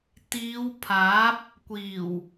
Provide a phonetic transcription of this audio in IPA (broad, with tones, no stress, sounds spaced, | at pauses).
t̪ iː˨˧ w pʰ aː˨˥ p̚ | kʷ iː˨˩ w